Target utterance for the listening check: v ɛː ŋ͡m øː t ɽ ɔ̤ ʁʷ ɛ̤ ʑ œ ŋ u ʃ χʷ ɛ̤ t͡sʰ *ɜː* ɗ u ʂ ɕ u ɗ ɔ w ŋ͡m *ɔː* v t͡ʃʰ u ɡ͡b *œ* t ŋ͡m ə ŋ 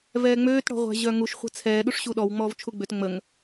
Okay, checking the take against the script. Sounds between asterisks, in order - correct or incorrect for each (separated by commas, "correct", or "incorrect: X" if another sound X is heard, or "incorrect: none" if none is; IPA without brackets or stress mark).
incorrect: ɛː, correct, incorrect: ø